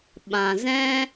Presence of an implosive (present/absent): present